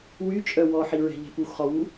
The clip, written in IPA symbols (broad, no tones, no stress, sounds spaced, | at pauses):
w y t͡ʃʼ œ w ɔ ħ i ɹ ɛ̤ ʎ ɛ̤ p u x χ ɔ w u